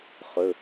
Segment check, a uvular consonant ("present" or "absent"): present